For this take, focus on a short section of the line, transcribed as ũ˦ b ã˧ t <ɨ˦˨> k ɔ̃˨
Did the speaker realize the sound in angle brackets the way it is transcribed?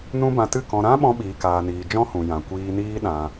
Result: yes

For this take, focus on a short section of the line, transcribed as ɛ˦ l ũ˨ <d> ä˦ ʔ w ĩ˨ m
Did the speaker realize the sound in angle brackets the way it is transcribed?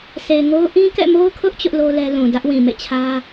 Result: yes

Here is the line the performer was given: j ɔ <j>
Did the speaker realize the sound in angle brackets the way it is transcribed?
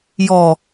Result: no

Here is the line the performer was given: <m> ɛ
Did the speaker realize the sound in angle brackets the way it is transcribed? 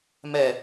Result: yes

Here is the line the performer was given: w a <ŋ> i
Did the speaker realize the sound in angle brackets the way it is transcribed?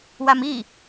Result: no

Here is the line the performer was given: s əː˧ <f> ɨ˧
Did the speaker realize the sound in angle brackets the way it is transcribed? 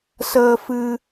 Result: yes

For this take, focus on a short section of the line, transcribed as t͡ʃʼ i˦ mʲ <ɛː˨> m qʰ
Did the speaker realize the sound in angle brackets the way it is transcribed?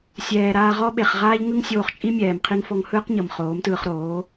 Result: yes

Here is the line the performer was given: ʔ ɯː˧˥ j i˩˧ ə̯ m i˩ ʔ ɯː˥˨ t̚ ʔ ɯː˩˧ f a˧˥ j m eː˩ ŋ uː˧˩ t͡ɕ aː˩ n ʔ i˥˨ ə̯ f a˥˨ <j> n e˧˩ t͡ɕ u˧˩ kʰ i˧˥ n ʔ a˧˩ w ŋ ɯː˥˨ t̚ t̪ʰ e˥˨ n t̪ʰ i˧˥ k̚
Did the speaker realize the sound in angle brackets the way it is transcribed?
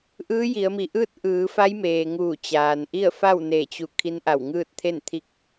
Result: no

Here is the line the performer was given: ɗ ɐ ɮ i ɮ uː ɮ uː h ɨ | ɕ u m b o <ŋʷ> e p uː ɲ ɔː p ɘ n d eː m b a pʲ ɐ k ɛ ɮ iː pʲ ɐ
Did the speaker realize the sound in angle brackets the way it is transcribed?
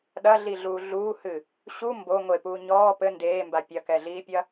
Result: yes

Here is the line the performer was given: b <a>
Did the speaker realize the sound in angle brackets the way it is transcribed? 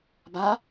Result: yes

